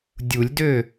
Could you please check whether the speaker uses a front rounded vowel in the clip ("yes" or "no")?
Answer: yes